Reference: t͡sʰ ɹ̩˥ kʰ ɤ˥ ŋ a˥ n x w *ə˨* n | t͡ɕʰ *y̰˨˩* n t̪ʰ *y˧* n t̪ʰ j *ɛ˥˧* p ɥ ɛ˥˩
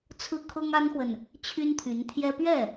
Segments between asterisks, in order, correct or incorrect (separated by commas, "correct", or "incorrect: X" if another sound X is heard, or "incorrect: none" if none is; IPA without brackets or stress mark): correct, incorrect: y˥, incorrect: y˧˥, incorrect: ɛ˥